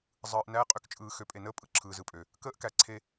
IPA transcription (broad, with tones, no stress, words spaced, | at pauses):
zˤɯː˨ʔ næː˦ qʼø˦kt͡ʃʼɯː˨ xø˨˦pʼe˨nəː˦pʼɯ˨ ǁʰɯː˨zɯ˨pʼø˨ | kəː˦ʔkæ˨ǀʰe˨